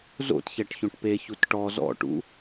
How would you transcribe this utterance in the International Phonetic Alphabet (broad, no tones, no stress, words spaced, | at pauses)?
zo̰tçɛʈçõʈ peçut ʈɔ zɔ̰ʈṵ